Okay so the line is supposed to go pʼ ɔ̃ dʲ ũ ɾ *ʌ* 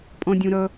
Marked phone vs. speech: correct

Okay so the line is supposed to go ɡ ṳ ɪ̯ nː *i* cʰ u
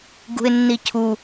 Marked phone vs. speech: correct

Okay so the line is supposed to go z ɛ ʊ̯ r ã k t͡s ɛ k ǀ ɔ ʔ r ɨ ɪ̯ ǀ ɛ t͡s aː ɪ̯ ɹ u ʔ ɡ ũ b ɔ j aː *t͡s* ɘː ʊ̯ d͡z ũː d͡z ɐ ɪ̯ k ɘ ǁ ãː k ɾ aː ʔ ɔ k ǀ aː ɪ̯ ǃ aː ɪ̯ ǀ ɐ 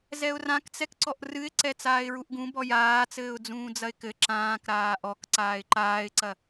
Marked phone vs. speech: correct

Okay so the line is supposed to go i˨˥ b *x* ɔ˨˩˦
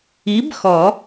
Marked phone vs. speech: correct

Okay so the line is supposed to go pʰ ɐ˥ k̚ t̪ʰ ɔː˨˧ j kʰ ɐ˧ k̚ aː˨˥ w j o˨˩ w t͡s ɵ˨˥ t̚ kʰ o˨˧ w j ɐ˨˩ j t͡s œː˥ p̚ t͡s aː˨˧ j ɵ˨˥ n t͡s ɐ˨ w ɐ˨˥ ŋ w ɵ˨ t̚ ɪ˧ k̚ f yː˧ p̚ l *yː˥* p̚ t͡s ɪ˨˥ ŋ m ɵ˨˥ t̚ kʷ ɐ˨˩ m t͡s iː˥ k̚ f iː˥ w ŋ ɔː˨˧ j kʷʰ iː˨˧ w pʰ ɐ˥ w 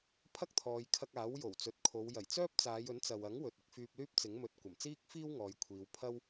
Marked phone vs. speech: correct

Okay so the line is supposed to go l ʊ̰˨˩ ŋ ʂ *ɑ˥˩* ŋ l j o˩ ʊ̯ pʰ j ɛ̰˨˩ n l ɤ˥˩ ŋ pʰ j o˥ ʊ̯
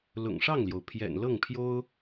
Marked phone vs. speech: correct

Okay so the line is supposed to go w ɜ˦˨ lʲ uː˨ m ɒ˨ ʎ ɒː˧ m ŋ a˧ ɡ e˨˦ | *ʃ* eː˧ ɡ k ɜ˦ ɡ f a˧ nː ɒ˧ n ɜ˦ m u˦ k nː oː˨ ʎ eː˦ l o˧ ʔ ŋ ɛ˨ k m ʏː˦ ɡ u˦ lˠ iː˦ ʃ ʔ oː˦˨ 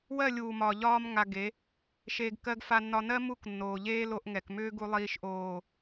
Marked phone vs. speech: correct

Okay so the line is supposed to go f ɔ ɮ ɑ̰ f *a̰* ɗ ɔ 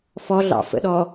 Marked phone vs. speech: incorrect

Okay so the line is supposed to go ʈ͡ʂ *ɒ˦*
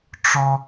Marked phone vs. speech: correct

